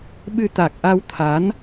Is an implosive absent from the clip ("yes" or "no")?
no